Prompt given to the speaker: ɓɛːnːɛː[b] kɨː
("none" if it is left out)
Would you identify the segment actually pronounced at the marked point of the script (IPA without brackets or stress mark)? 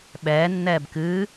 b